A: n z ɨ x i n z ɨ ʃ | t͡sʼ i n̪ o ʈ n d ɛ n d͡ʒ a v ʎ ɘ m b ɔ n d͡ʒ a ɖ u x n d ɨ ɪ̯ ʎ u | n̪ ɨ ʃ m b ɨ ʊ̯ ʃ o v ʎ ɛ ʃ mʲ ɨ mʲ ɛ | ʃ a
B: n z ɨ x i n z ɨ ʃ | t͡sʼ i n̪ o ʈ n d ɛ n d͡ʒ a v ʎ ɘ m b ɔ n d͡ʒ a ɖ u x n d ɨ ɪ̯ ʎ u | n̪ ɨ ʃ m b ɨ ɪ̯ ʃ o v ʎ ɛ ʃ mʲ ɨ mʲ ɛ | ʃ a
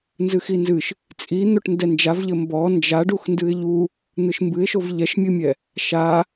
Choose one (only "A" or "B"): B